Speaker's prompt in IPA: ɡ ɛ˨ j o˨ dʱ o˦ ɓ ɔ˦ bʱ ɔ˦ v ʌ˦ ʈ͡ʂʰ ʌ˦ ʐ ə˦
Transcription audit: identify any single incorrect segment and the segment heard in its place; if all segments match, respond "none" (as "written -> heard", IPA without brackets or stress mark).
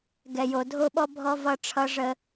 none